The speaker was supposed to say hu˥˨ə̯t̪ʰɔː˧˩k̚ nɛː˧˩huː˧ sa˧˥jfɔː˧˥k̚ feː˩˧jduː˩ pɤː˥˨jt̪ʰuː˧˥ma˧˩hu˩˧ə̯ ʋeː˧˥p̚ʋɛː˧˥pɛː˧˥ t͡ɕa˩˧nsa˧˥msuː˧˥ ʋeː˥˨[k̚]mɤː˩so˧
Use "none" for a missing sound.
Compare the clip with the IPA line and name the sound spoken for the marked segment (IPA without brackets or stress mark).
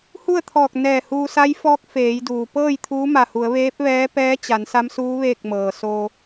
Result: k̚